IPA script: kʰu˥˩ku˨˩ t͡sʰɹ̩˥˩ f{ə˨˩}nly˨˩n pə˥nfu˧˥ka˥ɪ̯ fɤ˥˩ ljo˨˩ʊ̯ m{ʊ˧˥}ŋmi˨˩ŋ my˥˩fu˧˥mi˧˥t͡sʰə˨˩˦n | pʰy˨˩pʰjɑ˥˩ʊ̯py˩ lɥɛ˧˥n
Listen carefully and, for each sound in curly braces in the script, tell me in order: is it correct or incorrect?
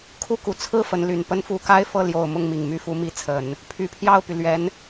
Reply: incorrect, incorrect

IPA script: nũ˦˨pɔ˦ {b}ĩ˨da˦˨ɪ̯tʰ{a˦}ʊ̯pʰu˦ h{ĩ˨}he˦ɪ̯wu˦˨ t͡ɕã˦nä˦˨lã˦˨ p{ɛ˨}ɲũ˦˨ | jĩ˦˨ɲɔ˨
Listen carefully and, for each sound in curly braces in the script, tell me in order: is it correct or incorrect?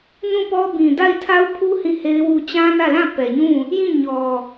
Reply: correct, correct, incorrect, correct

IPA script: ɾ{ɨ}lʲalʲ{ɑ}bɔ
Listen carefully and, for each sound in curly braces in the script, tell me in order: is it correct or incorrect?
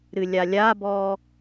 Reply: correct, incorrect

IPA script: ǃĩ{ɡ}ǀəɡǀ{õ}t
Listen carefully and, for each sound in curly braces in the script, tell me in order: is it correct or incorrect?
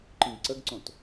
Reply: correct, correct

